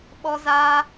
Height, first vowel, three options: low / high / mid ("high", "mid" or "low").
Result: mid